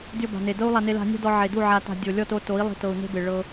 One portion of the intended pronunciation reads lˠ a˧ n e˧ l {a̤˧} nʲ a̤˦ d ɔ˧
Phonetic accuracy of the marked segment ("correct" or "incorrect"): correct